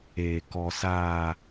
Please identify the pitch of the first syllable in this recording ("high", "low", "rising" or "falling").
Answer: low